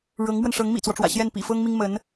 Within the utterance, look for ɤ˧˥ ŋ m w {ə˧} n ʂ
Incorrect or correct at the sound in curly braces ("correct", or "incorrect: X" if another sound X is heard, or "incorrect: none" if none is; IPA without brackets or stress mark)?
correct